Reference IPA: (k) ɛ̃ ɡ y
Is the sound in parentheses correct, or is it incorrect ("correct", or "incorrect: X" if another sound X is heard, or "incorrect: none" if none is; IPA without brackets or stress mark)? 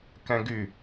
correct